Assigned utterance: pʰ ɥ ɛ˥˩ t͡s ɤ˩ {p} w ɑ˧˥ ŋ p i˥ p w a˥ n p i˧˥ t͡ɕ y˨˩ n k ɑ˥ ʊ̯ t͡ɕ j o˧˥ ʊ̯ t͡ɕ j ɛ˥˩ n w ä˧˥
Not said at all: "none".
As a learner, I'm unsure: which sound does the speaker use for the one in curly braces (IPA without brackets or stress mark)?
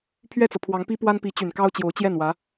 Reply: pʰ